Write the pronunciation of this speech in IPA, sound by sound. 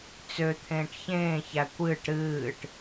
t͡s ø t̪ʰ ẽː ʈ ç ẽː ç æ kʷ ɨː ʈ ɾ ɨː ʈ

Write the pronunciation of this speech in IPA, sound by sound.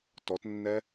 t ɔ t nː ɛ

